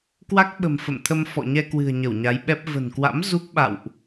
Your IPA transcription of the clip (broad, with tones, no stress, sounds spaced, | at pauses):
k w a˦˥ k̚ ɓ ə̤˨˩ m f ə̰˧˨ m t̪ʰ ə˧ m f ɔ̰˧˨ ɲ ɛ˧ k w ɨ̤˨˩ ə̯ ɲ ə˧˩ w ɲ a˨˦ j ɓ ɛ˦˥ p̚ v ə̤˨˩ n k w a̰˧˥ m z u˦˥ k̚ ɓ a̰˧˨ w ʔ